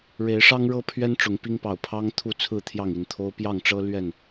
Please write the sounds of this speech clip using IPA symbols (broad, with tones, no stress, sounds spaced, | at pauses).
ɻ e˨˦ ɪ̯ ʂ ɑ˦ ŋ ɻ ɤ˦ pʰ ɥ ɛ˦ n ʈ͡ʂ ʊ˨˦ ŋ p i˦ ŋ p ɑ˨˩ ʊ̯ pʰ ɑ˦ ŋ t̪ʰ u˥˨ t͡sʰ ɹ̩˥˨ t̪ʰ j ɑ˥˨ ŋ i˥˨ n t̪ʰ o˦ ʊ̯ p j ɑ˥˨ ŋ ʈ͡ʂ ɤ˦ l ɥ ɛ˥˨ n